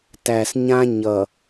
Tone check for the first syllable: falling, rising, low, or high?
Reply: low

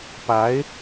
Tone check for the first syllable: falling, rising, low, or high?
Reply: rising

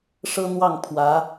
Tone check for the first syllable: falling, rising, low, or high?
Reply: high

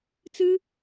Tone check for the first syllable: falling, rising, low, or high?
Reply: high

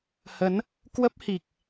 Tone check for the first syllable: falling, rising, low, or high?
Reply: rising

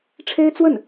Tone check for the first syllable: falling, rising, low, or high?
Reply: high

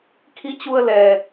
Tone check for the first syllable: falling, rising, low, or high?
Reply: rising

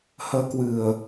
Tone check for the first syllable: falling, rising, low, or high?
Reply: rising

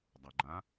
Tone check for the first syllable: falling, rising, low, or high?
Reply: low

